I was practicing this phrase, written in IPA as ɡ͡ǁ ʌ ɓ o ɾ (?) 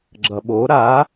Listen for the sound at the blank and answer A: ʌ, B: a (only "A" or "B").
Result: B